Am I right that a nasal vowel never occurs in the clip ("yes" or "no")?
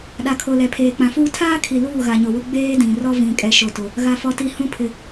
no